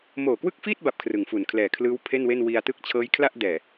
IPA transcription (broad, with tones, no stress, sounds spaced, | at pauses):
m oː˨˩ k w ɯ˥˩ k̚ f iː˥˩ t̚ b a˥˩ p̚ kʰ r ɯ˨˩ ŋ f u˨˩ n kʰ l ɛː˨˩ kʰ l ɯː˦˥ w pʰ e˥˩ n w e˥˩ n w i˧ a̯ t ɯ˥˩ k̚ t͡ɕʰ ɤː˦˥ j kʰ l a˥˩ ʔ d ɛː˨˩